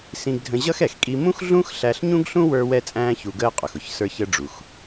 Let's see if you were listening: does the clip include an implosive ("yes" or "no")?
no